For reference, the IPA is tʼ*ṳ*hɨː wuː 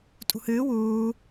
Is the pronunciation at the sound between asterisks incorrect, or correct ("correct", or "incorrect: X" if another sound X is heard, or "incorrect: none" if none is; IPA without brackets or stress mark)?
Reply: correct